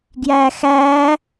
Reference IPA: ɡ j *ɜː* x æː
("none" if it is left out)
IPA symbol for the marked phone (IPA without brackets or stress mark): æː